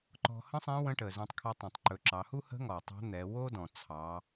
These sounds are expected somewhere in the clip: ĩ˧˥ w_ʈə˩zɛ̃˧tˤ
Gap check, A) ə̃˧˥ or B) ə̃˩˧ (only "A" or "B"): A